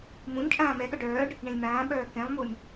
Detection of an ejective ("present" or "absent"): present